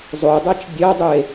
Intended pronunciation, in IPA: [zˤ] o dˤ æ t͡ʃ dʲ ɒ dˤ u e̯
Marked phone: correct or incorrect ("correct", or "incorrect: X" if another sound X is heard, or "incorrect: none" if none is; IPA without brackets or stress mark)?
correct